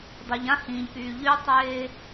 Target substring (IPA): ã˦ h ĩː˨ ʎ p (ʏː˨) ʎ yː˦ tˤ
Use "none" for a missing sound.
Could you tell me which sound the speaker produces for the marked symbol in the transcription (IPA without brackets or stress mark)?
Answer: yː˨